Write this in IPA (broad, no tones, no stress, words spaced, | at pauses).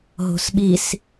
ɦo̤sɓis